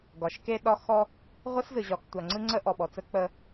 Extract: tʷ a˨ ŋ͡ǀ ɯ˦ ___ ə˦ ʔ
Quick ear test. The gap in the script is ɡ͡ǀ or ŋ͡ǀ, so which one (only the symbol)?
ŋ͡ǀ